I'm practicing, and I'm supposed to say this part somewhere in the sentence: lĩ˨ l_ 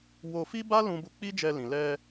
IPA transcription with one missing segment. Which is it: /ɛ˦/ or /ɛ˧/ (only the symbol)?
ɛ˧